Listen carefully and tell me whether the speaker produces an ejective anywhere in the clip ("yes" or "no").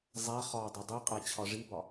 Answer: yes